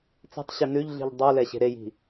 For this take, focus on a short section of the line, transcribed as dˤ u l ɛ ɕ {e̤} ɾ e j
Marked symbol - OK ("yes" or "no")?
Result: yes